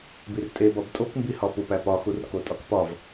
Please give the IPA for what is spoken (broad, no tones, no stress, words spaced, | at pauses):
birtʼebɒb tʼokmbihɒ pupæpɒxur kotʼɒkpɒv